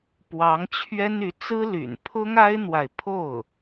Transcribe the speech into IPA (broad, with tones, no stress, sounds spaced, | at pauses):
p w ɑ˧˥ ŋ t͡ɕʰ ɥ ɛ˥ n y˧˥ t͡s ɹ̩˥ l y̰˨˩ n pʰ ʊ˥ ŋ a˥ ɪ̯ n̪ w a˨ ɪ̯ pʰ o˥˩ ʊ̯